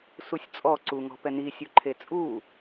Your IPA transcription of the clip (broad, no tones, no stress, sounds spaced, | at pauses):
s u sʲ t͡sʼ ɔ ǀ u ŋ ɔ̤ p ɛ n i sʲ u ǃʰ e t͡sʼ u